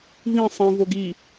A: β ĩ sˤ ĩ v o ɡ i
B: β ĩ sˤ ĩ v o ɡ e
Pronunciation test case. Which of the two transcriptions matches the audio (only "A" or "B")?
A